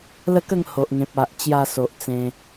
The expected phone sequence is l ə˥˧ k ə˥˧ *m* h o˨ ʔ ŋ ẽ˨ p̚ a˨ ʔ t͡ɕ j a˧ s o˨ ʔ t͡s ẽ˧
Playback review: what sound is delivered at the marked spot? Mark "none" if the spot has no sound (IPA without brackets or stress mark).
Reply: ŋ